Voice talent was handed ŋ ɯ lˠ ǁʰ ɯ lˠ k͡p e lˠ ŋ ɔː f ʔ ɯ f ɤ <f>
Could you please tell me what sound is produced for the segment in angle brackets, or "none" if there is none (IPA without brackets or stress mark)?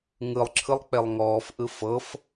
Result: f